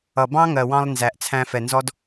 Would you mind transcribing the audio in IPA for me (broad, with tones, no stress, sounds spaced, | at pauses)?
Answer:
ʌ˨ b ɑ̃˦ ŋ ɜ˨ w ɑ̃˧ lˠ n z æ˨ ʔ t͡sʰ æ̃˧ f ɛ˨ n z ɔ˦ d